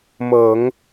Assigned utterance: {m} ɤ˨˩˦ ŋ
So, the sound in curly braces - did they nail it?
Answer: yes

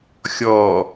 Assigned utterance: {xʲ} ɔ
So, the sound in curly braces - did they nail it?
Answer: yes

